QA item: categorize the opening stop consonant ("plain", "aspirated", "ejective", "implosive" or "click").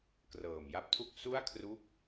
plain